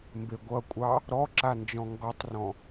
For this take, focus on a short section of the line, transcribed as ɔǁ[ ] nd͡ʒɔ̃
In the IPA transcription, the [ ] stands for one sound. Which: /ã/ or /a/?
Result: a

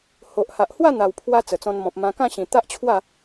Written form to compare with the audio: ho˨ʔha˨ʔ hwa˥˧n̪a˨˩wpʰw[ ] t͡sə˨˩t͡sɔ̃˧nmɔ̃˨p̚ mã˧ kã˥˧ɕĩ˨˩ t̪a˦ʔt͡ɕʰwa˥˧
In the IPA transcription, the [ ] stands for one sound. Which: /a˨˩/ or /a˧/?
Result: a˧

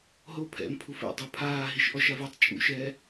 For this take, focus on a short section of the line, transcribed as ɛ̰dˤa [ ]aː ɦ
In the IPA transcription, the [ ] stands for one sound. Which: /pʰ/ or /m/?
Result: pʰ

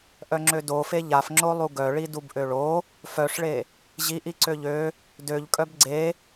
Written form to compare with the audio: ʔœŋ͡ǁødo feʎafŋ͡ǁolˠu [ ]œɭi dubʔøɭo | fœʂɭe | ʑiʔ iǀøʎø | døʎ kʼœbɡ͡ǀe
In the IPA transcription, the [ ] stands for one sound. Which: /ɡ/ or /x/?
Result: ɡ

